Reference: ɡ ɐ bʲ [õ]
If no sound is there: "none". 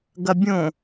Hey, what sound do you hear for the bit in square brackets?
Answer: õ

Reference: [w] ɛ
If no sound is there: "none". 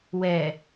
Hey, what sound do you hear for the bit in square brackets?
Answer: w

